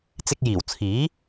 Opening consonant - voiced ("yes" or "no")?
no